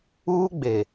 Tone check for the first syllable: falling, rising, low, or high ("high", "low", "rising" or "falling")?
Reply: high